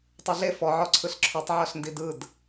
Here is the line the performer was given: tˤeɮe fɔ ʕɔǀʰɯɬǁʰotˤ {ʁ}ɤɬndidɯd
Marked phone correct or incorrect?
incorrect